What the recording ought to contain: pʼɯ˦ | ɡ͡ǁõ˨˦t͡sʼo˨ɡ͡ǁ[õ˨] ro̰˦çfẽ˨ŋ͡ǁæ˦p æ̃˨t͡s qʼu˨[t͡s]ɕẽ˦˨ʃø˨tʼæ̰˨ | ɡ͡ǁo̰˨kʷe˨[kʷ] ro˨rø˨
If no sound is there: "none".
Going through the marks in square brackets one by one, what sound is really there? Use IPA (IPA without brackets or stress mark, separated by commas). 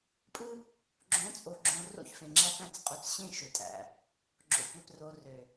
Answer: õ˨, t͡s, p